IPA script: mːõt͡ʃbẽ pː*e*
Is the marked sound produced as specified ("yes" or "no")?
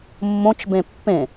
no